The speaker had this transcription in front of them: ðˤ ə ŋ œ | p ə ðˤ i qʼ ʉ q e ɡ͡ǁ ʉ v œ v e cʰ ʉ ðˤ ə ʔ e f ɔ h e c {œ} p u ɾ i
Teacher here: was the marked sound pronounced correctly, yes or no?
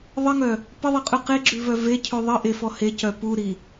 yes